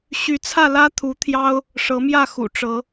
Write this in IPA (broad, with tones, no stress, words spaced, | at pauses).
ɕy˨˦t͡sʰä˥˨ lä˦ t̪ʰu˨˦t̪ʰjɑ˦ʊ̯ | ʂɤ˨˦mjä˥˨xṵ˨˩ ʈ͡ʂɤ˨˦